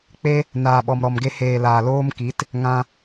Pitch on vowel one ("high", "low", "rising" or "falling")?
high